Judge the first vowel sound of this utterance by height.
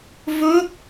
mid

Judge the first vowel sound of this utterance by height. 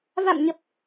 low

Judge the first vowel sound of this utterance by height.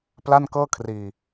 low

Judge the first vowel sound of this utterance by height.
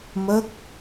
mid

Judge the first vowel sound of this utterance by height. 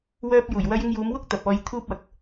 mid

